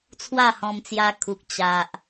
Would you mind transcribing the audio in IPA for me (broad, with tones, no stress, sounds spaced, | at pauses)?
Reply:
t͡sʰ w a˥˧ h ɔ̃˧ m t͡s j a˧ kʰ u˨ k̚ t͡ɕ a˨ ʔ